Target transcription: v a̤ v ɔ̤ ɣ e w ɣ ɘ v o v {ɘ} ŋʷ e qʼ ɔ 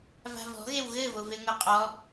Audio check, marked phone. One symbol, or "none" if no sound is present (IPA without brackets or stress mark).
e